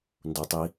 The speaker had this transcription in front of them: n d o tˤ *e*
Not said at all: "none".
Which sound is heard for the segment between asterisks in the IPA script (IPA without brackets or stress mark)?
i